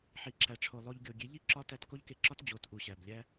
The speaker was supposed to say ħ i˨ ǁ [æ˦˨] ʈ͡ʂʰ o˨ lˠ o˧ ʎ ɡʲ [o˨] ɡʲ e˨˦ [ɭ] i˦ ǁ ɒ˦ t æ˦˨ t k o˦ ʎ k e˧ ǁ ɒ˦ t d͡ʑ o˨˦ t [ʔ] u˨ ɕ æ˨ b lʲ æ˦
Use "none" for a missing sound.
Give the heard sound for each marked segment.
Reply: æ˨, o˨, ʎ, ʔ

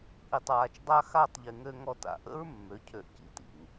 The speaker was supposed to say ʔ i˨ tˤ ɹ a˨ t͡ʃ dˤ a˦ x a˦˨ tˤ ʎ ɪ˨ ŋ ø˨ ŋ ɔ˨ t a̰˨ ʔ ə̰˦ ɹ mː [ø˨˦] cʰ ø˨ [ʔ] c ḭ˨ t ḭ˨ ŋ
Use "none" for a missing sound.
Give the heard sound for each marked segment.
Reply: ø˨˦, ʔ

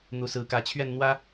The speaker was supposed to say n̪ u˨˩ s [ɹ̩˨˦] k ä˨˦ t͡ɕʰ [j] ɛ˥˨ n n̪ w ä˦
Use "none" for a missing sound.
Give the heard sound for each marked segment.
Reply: ɹ̩˨˦, ɥ

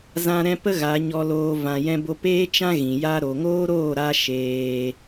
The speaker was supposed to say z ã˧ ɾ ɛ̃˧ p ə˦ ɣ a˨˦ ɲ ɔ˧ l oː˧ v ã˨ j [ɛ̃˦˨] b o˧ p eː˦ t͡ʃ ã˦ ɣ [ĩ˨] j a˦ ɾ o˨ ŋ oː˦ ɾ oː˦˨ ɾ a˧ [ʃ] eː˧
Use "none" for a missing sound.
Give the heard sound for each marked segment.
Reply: ɛ̃˧, ĩ˨, ʃ

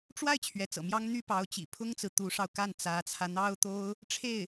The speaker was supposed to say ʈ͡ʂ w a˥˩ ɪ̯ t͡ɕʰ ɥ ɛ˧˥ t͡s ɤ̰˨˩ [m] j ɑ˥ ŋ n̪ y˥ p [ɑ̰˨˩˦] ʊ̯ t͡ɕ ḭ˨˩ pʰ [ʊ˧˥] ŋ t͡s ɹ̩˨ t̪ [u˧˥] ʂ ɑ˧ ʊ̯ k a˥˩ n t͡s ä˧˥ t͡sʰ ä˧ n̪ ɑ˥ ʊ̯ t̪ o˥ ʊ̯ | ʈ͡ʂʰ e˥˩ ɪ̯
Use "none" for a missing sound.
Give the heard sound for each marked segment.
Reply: m, ɑ˧˥, ʊ˥, u˧˥

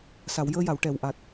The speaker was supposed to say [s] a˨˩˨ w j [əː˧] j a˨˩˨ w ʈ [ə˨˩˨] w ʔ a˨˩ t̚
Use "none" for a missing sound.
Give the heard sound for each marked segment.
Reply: s, əː˧, ɛ˨˩˨

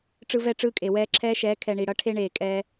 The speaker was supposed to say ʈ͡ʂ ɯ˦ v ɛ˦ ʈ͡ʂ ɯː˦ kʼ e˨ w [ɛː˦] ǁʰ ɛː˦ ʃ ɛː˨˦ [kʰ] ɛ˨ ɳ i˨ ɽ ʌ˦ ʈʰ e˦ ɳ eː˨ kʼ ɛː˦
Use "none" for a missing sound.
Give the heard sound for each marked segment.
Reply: ɛː˦, kʰ

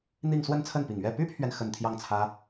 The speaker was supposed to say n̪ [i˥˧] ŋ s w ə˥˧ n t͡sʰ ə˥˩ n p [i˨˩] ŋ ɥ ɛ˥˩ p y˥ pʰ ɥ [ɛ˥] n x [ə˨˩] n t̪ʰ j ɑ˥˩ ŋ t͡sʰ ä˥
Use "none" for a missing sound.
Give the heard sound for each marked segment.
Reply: i˥˧, i˨˩, ɛ˨, ə˨˩

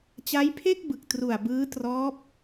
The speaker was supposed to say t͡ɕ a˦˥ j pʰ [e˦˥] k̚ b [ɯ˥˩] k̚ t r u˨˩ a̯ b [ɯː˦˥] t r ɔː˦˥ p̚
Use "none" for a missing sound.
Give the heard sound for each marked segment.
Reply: e˥˩, ɯ˨˩, ɯː˦˥

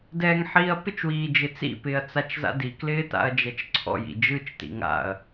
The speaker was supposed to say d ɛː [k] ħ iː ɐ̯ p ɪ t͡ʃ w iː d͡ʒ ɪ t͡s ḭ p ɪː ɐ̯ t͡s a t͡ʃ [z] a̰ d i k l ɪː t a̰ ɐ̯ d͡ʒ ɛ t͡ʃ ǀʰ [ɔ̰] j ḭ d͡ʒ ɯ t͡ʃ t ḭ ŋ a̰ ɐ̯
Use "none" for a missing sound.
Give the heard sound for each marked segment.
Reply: ŋ, z, ɔ̰

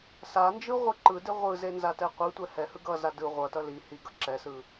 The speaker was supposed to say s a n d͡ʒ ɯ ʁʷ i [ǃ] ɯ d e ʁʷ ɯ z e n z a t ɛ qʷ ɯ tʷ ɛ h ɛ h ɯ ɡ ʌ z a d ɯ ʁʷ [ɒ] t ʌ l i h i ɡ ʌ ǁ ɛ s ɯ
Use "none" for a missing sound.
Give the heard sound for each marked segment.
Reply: ǃ, ʌ

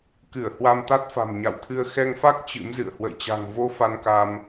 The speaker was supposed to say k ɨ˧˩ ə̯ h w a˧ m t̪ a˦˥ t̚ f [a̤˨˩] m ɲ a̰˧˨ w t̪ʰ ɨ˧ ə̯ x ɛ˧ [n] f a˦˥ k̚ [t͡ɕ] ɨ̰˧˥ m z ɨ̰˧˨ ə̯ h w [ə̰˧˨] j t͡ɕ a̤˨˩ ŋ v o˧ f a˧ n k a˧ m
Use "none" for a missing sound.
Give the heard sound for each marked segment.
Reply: a̤˨˩, ŋ, t͡ɕ, ə̰˧˨

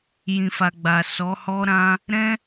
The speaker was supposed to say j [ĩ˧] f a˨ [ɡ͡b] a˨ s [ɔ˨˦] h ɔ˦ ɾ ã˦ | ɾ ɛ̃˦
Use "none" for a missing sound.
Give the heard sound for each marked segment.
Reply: ĩ˨, ɡ͡b, ɔ˨˦

